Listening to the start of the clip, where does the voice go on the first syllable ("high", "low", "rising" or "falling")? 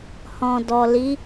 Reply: low